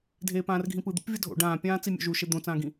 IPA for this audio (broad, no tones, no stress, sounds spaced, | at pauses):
dʱ eː p ãː r ɡʱ ĩ p ɯ d̪ ṵ p vʲ ʌ dʱ o̰ ɖ ãː pʲ ãː t͡s i mʲ o̰ ʒ u ʃ e d̪ õ t͡s ãː ɡ ĩ